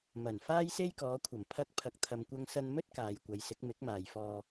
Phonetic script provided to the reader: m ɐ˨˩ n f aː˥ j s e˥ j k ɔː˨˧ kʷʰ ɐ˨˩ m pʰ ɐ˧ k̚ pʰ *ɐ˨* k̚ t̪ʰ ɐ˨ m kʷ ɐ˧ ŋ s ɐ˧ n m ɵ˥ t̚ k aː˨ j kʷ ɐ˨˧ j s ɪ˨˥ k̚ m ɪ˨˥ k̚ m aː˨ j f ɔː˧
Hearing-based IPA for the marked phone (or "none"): ɐ˨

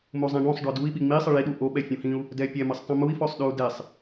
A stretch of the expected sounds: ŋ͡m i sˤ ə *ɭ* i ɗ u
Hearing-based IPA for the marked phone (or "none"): ɭ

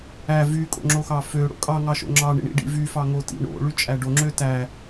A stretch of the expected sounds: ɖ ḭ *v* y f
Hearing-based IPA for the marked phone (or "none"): v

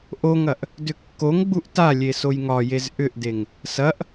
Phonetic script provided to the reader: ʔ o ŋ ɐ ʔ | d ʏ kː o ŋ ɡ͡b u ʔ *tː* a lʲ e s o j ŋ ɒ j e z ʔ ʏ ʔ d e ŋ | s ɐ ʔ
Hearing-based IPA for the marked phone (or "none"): t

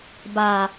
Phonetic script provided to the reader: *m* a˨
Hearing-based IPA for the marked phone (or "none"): b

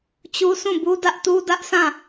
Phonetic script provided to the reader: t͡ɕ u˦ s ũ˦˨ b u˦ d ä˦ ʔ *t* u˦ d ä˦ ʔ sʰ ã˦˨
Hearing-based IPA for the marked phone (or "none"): t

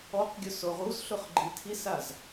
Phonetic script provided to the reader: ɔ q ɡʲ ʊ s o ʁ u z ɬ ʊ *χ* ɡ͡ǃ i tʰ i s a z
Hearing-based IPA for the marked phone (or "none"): χ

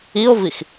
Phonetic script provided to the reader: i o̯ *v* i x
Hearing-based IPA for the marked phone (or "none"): v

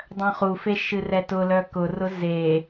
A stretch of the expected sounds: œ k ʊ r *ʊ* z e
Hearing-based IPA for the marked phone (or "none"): ʊ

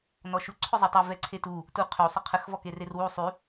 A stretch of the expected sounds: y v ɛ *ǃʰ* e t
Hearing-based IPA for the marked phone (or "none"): ǀʰ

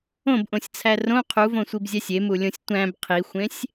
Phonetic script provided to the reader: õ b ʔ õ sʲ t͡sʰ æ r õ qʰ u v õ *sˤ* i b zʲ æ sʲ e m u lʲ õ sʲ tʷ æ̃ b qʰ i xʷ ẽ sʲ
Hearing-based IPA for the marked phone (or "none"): sʷ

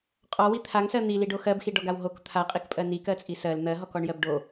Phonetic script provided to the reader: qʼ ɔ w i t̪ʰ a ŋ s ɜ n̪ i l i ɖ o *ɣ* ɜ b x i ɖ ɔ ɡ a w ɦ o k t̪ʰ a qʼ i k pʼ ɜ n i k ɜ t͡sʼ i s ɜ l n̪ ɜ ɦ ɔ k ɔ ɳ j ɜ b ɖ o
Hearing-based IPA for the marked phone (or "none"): x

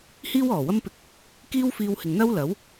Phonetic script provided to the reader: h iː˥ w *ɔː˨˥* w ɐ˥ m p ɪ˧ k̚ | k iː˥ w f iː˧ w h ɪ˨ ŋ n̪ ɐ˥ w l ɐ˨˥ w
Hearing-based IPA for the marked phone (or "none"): ɔː˨˩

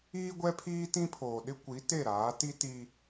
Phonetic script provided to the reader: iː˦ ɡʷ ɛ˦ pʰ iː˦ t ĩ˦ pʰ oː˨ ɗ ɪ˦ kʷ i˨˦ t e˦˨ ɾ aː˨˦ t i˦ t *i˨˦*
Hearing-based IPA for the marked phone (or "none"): i˦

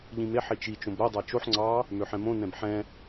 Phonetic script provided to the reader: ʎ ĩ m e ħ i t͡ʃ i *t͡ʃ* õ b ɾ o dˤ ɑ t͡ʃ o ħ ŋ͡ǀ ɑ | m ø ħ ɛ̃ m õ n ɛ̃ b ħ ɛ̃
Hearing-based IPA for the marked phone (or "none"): t͡ʃ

